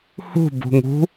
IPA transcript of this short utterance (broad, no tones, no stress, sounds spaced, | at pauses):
h ṳ b ṳ ŋ ṳ